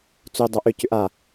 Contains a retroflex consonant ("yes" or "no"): no